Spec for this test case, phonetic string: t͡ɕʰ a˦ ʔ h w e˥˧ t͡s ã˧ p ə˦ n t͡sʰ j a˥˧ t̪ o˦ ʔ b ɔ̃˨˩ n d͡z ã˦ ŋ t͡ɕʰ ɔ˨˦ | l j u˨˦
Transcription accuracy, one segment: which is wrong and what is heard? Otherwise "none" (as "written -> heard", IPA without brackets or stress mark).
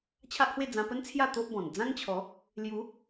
t͡s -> d͡z